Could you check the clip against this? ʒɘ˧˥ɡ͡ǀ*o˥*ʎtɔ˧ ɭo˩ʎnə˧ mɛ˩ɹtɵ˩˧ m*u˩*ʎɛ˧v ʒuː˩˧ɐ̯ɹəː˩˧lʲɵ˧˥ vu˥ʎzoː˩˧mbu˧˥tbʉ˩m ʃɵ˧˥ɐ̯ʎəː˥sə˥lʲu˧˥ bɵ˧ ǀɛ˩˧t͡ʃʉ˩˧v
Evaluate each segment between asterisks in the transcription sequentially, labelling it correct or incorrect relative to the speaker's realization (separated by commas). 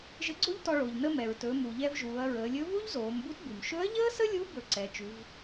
correct, correct